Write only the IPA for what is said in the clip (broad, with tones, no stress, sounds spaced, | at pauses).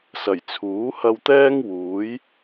s ɐ˨˩ j t͡sʰ uː˨˥ h ɐ˧ w t̪ ɛː˥ ŋ w uː˨˥ j